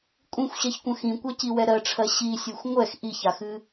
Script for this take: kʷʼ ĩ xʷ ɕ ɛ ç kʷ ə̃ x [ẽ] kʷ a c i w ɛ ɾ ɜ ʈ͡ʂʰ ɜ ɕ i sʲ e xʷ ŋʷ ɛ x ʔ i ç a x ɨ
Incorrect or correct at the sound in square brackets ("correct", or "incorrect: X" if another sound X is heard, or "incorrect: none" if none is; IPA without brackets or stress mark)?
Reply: incorrect: ĩ